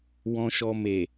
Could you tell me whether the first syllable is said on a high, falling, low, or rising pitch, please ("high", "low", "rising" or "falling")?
low